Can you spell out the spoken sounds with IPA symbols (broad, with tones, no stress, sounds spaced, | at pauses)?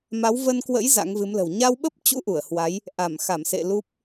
m a˨˦ w v ə˧ n k w ə̰˧˥ j z a̰˧˥ ŋ v ɨ˨˦ m l ə̤˨˩ w ɲ a˧ w ɓ ə˦˥ p̚ t͡ɕ ṵ˧˥ ʔ u˧˩ ə̯ h w a˨˦ j | ʔ a˧˩ m x a˧˩ m s ḛ˧˨ l u˦˥ p̚